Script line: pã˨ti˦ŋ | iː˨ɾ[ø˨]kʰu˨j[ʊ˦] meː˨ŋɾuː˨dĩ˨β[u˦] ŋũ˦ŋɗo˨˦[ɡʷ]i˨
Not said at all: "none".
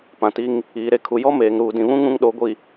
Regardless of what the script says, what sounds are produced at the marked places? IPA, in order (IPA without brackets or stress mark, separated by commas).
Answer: e˨, ɔ˦, ũ˦, ɡʷ